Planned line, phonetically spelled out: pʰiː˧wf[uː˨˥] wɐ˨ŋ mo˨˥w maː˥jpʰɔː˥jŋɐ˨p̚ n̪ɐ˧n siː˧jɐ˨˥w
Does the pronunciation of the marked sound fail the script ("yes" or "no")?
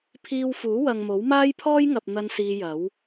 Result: no